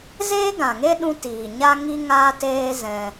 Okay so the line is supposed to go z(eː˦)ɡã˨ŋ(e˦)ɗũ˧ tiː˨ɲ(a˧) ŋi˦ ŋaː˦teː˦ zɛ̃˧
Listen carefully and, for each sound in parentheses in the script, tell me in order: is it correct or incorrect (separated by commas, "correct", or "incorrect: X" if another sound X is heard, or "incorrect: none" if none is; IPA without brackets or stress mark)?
correct, correct, incorrect: a˦